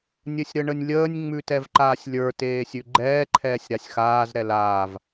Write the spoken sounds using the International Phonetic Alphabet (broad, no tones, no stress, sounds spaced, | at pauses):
nʲ ɘ sʲ ɾ ə ɳ ə nʲ lʲ əː nʲ ŋ͡m ʉ t ɛ v ǃ aː sʲ lʲ ə˞ t eː sʲ ʉ ɡ͡ǃ ɛː ǃʰ ɛː sʲ ɾ a sʲ x aː z ɾ ɛ l aː v